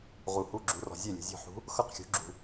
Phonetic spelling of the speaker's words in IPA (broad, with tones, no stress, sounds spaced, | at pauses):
ʁ u˨ h u˧˥˧ ɡ͡ǁ u˩˥ r ɔ̤˨ zʲ e˥˩ lʲ ṳ˨ zʲ ɔ̤˥˩ ħ ṳ˧˥ | x ɤ˥˩ q xʲ ṳ˩˥ ɡ͡ǁ ṳ˨